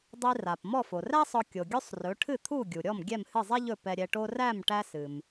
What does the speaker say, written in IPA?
dˤi˧ra˩p mɔ˥˩fo˩ræ˥sˤɔ˧ kʲo˩ɡʲɵ˥sˤrɵ˩˥ ʈʰɨ˥˩t̪ʰu˥˩ɡʲu˩ɾʲɔ˥˩m ɡʲɛ˥˩mhɨ˥˩zˤɛ˥ʎɵ˥˩ pɛ˧ɾʲɛ˧ʈo˥ ræ˥˩m ʈæ˥sɨ˩m

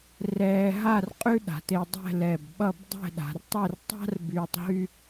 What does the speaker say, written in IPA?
rɛː˧ɦa˥˧r qʼʉ˥ɗa̤˩˧te˧ dˤɛ̤˥˧lɛ˧˩bɓʌ˥˧b dˤɛ̤˥˧ɗa̤˩˧rtˤe˥˧r tˤa̤˥r byː˧tˤɦy˥

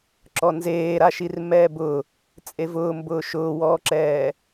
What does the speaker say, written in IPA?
ǁɔnzeːɾaʃir mɛːbʊ | t͡sʼevʊː mbʊːʃʊːwɔːǁɛː

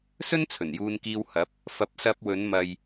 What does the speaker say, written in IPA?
sɵ˥n t͡sʰɵ˨˩njuː˧nkiː˧whɐ˨˥p̚ | fɐ˨˥p̚sɐ˧p̚wɵ˨˧nmɐ˨j

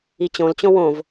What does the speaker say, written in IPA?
it͡ɕõlt͡ɕõ wõv

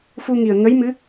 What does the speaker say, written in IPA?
fu˧ŋi˨˩ə̯ ŋə˧˥jmɨ˧˥

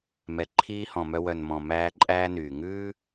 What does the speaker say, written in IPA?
mɛ˨ǃʰiː˦hɔ̃˨mœ˦ wœ˨nmɔ̃˨ mæː˦ǃʼæː˦ nyː˨ ŋʉː˦

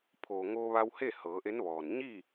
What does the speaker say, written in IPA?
pʰoː˩ŋoː˧ʋa˧whe˥˨ hɤː˩˧ʔe˧˥nʋɔː˩n ɲi˥˨

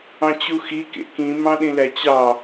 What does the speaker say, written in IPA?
ɑ̃t͡ɕuxi kḛkĩ mɑ̃ɗĩlæt͡ɕɑ

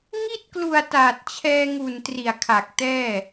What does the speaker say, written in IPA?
ŋi˥˩t̚klu˨˩a̯ taː˨˩t̚t͡ɕʰɛː˧ŋu˨˩n tri˨˩a̯kʰa˨˩k̚tɛː˥˩

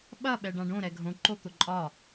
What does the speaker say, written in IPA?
ɓɐ ɓɛɖãɖõ ɾɛɡʱõ ǃot̪ʊǃʼɒ

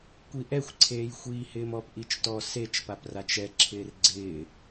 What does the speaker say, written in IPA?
kʷiʔɛxʷǀʰeːj xʷiːhɪːmɔpʔit͡ʃ tɔ set͡ʃpaprat͡ʃ ɛǁʰɪːr ɡ͡ǀɪː

